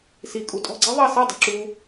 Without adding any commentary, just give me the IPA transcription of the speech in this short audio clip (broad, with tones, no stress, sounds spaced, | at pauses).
s i˨ kʼ u˨ tʼ ɔ̤˦˨ ɡ͡ǀ ɛ˦ ðˤ ɑ˦˨ s ɛ˦˨ dˤ ṳ˨ ǁ u˧